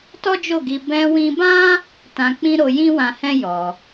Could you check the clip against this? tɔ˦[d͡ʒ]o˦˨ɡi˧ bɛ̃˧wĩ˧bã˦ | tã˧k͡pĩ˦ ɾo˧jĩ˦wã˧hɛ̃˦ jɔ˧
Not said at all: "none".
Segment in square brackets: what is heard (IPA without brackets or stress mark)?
d͡ʒ